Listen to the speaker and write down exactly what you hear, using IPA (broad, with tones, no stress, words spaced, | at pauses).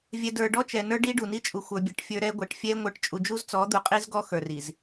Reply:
vʲɛ˨də˞˨ ɖɔ˦t͡ʃɛ˨nə˞˦ ɖi˦ɖu˨ni˦ t͡ʃʼu˨xʷə˞˨bʲɛ˨ʈ fʲə˞˦ɾɛ˦ ɡʷɛ˨ʈfʲɛ˦ ŋʷə˞˨ʈt͡ʃʼu˨d͡ʒu˦z t͡sɔ˨˦d̪u˨qʼi˦z ɡɔ˦xə˞˨ri˨z